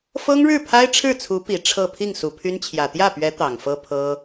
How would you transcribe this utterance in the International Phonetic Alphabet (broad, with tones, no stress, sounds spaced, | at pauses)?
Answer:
f ɤ˥ ŋ ɻ ɻ̩˥˩ pʰ a˥ ɪ̯ ʈ͡ʂʰ ɻ̩˥˩ t͡sʰ u˧˥ p i˨˩ ʈ͡ʂʰ ɤ˥˧ pʰ i˥˩ ŋ s u˨˩ pʰ y˥ n t͡ɕʰ j ä˨˩ t̪ j ä˥˩ p ɥ ɛ˧˥ t̪ ɑ˨˩ ŋ f ɤ˥ pʰ ɤ˥